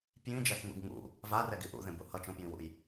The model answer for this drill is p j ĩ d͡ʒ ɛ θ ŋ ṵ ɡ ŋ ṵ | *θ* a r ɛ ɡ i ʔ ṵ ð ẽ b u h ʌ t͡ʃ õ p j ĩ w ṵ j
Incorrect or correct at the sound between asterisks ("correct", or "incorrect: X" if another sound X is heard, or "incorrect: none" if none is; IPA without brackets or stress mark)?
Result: incorrect: v